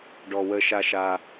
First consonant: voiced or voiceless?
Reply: voiced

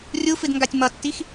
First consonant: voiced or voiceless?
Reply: voiced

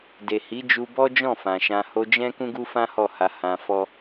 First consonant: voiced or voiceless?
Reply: voiced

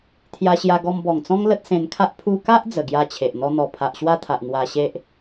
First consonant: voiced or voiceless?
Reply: voiceless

